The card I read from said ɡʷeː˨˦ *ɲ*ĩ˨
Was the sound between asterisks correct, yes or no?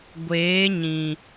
yes